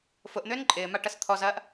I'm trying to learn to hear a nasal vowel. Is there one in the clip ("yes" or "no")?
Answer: no